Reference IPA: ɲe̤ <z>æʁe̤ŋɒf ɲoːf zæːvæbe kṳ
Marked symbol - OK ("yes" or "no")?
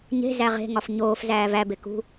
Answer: yes